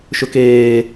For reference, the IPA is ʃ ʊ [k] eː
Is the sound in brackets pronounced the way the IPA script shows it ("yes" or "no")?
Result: yes